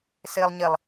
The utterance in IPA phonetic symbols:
s ɪː lˠ ɲ ɪ lˠ

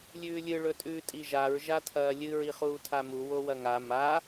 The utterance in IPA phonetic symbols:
lʲ ʉː lʲ ɨ ɭ ɵ tʼ ʉː tʼ i ʒ a ɹ ʒ a tʰ ɐː lʲ ɨ ɹ i χ uː tʰ a m u w o w ɐ ŋ a m a

